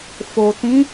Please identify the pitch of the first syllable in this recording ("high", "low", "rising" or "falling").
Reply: low